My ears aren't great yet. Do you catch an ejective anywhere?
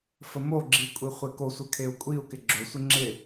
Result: yes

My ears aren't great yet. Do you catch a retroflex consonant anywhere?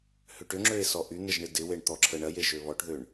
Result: yes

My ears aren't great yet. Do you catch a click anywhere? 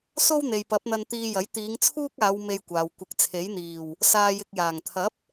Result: no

